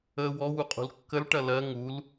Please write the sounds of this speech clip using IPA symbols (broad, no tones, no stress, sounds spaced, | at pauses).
ə w ɔ w u qʼ ṳ l kː ə l ʈ ɐ l ɜ ŋ u l